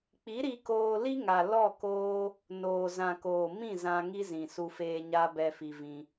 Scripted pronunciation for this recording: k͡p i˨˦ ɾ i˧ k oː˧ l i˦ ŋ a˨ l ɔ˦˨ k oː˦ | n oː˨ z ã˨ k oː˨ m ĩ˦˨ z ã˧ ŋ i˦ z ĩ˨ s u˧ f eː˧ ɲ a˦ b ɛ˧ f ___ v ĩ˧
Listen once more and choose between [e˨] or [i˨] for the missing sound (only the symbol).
i˨